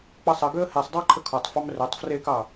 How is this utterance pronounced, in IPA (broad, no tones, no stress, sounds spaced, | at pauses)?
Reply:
k͡p ʌ sˤ ə ɡ ø ə̯ h e sˤ dˤ a ǃʰ ə kʰ ɔ tˤ f ɑ m r ø tˤ f r e k ɑ